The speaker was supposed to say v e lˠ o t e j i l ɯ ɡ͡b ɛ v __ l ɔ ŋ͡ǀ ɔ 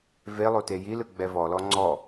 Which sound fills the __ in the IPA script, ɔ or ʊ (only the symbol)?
ɔ